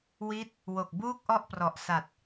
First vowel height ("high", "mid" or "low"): high